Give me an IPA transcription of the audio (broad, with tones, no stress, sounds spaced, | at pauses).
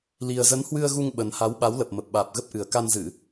l i˨˩ ə̯ z ə˨˦ n h w ɨ˧ ə̯ ɣ u˧ ŋ ɓ ə˨˩ n h a˨˦ w ɓ a˨˦ w l ə˨˩ p̚ m ə˨˩ p̚ ɓ aː˨˩ p̚ ɣ ə˦˥ p̚ ʔ ɨ˨˩ ə̯ k a˧ n z ɨ˧˩˨